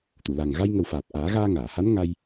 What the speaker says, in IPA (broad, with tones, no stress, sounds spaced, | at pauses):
t̪ u˨˩˨ l a˨˩ ŋ ɣ a˧ j ŋ ə˨˩ w f aː˨˩ p̚ ʔ aː˨˩˦ ɣ aː˧ ŋ aː˨˩˨ h a˧˥ n ŋ a˧ j